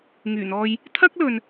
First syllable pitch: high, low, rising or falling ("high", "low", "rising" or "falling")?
low